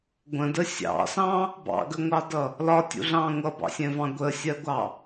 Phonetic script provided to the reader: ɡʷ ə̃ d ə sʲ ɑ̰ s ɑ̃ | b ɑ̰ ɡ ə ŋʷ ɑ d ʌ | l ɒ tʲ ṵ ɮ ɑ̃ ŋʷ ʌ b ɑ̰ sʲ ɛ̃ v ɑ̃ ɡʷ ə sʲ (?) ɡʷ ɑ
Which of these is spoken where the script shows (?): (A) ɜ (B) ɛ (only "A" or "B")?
A